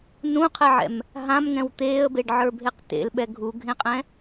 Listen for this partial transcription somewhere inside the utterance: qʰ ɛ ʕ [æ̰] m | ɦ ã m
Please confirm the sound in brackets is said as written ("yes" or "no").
no